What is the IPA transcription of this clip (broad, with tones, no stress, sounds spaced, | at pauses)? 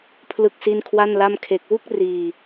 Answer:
pʰ l ɯ˥˩ k̚ s i˥˩ n kʰ w a˥˩ n l a˥˩ m kʰ e˦˥ k̚ w u˥˩ k̚ r iː˧